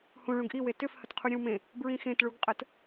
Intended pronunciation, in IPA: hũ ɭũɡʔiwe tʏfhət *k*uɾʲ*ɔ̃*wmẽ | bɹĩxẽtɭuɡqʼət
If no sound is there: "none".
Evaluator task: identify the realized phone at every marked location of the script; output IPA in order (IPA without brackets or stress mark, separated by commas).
qʰ, ə̃